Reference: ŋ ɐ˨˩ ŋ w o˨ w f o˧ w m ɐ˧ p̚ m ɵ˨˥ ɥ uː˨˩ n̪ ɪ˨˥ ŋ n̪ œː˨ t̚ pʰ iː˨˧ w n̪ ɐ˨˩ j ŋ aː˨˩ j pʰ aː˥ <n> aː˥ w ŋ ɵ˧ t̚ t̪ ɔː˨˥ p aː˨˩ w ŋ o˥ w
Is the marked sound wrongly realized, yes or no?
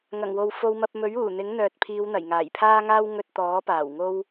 yes